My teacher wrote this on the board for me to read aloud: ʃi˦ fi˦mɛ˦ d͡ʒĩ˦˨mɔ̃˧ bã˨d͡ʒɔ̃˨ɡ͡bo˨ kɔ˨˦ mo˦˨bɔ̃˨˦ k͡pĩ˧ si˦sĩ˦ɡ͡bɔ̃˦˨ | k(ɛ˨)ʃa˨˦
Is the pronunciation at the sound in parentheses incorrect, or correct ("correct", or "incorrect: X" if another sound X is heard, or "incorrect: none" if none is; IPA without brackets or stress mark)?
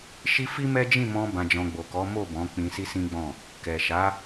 correct